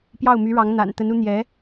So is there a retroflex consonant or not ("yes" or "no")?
yes